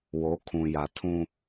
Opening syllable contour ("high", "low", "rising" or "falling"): rising